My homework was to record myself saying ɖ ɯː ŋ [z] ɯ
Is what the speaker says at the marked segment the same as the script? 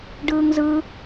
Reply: yes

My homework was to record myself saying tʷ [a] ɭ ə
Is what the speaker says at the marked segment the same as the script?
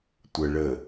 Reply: no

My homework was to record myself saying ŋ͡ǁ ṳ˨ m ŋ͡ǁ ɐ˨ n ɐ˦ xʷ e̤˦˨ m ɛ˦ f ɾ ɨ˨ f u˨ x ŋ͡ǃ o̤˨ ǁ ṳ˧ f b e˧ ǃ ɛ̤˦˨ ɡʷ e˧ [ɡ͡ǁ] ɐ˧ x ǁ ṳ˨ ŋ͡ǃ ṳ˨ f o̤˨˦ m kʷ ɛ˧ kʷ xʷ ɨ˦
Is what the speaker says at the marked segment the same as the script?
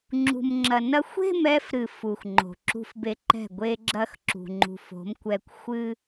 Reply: yes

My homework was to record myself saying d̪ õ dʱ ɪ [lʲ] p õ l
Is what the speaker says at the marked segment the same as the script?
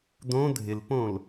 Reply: no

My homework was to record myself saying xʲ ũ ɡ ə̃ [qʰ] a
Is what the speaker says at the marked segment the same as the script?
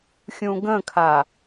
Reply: no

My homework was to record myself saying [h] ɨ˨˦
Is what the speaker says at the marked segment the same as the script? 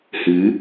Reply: yes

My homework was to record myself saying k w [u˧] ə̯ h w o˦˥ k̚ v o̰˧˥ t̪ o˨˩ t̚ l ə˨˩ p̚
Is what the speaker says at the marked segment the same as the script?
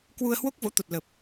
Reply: yes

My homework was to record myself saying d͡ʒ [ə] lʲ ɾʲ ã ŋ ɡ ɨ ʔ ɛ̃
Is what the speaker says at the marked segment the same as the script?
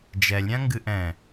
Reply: no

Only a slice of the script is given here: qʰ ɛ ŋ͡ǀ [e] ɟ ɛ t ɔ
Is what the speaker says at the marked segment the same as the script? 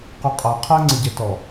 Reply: no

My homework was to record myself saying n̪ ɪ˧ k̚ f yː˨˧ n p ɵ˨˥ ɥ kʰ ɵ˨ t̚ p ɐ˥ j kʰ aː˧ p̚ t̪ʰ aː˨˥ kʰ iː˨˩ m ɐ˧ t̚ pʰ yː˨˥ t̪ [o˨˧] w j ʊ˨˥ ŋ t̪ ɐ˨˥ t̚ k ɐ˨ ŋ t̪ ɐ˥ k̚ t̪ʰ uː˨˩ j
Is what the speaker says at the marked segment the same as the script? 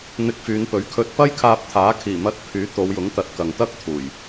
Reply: yes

